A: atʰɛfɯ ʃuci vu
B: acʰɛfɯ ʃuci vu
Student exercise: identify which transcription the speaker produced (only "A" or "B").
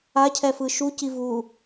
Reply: B